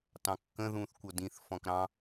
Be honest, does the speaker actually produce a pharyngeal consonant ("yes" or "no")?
no